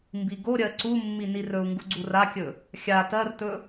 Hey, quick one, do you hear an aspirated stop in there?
no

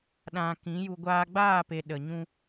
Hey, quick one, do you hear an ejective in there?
no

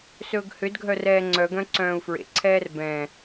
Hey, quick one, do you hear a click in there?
yes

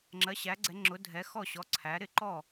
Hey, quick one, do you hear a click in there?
yes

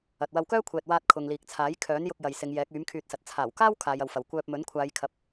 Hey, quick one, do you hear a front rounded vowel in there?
yes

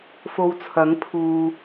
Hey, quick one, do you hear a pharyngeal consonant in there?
no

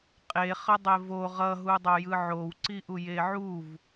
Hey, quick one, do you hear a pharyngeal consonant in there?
yes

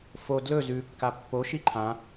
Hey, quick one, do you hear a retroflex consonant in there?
no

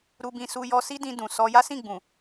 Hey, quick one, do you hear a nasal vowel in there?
yes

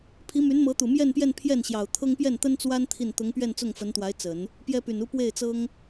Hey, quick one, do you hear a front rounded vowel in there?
yes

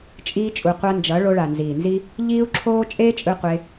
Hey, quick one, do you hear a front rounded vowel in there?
no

